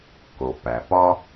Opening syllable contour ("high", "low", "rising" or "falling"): low